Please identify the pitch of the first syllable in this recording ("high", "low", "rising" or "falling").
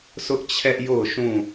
high